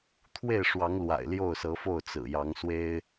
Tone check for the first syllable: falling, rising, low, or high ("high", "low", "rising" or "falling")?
falling